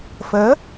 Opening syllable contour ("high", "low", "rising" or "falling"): rising